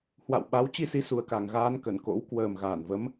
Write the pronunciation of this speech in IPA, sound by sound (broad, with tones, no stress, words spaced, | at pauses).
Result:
hwa̰˧˨wɓa˨˦w t͡ɕi˧si˨˦ su˨˩ə̯ka˨˩ŋɣaː˧nkə˧˩n ko̰˧˥w kwəː˨˩mɣaː˧˩n və˨˦m